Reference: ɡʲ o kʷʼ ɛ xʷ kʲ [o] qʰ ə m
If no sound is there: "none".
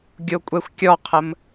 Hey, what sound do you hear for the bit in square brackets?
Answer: ɔ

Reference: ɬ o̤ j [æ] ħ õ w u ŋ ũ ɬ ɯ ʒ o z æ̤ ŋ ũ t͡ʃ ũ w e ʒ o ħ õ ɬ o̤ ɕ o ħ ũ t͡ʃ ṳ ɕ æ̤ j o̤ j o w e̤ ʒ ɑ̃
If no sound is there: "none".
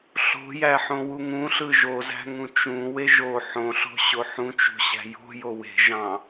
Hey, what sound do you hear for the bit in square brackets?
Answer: æ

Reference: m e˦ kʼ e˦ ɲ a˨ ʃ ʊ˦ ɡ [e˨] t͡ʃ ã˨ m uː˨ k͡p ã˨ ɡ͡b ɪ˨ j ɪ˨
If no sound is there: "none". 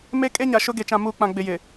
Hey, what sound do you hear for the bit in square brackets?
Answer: e˨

